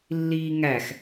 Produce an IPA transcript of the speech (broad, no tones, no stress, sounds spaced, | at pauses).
lː iː ŋ æ x